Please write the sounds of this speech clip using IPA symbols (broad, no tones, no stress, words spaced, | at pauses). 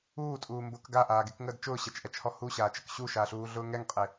uːtʼuː mbʊk ɡaʔaːɡekŋəːd t͡ʃʊːɕɛt͡ʃʔɛt͡ʃhɔ huɕaːt͡ʃək ɕuʃaɬuːɮʊː ŋɛŋqʼe